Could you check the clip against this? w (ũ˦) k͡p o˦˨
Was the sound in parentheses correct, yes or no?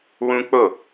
yes